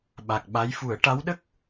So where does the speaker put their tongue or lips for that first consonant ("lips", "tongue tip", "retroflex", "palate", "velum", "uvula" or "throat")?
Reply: lips